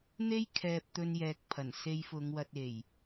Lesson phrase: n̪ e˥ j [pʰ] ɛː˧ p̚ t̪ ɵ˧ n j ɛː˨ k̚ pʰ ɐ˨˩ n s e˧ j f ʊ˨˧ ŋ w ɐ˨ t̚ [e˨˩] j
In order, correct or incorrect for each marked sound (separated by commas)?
incorrect, correct